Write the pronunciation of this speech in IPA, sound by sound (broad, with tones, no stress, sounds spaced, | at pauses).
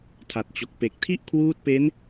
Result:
tʰ a˨˩ t̚ t͡ɕ o˨˩ k̚ p e˨˩ k̚ tʰ i˥˩ ʔ kʰ w uː˦˥ t̚ p e˦˥ n